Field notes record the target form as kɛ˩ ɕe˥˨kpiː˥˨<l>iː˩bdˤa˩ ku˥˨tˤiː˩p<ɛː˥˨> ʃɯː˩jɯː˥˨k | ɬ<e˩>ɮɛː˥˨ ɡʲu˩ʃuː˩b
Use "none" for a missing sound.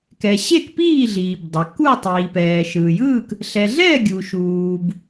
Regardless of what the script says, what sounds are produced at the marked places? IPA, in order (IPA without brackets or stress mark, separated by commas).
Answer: ɮ, ɛː˩, ɛ˩